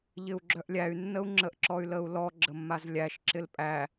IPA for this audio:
ʎ ɪ u̯ ɡ͡ǁ œ ʔ lʲ æ y̯ nː ə u̯ ŋ͡ǁ ə ʔ ǁ ɔ y̯ l ə u̯ l ɔ ɡ͡ǁ ə mː a z lʲ æ ʃ ǁ ɪ l pʼ æ

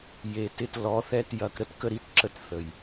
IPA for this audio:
j e˨ t ɪ˦ t l ɔ˨˦ θ ɛ˦ t j ɐ˨ k ɾ ə˦ t k ə˦ ɾ i˦ t ǁ ə˦ t θ ə˨ j

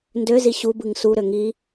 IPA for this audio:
n d ø z i ɕ u b ɯ ŋ s u ɾ ø ŋ i

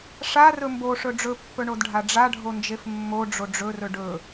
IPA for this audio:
ʂ a r ɵ m b o ʂ ɵ ɖ͡ʐ ɵ pː ɵ ɳ o d ɖʱ a ɖ͡ʐ a ɖʱ o n d͡ʒ e f mː o ɖ͡ʐ o ɖ͡ʐ ɵ r ɵ ɖ ɵ

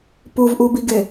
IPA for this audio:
p u v ʔ u b i ɡ e

